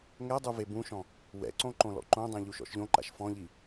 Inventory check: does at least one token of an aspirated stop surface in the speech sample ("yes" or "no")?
no